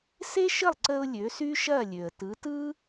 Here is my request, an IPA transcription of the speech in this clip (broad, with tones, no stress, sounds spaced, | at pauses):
s e˥ ʃ ə˥˩ lˠ ǀ ə˧ ʊ̯ lʲ ø˩˥ s y˥ ʃ ɐ˥˩ lʲ ø˩ ə̯ t ɯ˩˥ t ɯ˥